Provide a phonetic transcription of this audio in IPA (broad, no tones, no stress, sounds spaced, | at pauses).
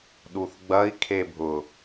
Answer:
ɗ u θ ɡ͡b ɐ i̯ kʰ e bʱ ʊ